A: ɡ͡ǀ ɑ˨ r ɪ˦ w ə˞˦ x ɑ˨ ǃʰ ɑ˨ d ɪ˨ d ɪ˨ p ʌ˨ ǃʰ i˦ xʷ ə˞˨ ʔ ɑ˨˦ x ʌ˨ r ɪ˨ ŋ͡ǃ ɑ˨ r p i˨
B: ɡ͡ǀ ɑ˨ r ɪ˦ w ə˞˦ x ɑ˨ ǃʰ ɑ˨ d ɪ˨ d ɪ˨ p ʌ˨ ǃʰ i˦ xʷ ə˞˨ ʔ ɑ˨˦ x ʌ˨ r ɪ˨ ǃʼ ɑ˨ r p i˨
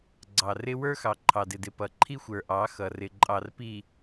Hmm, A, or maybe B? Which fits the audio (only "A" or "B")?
B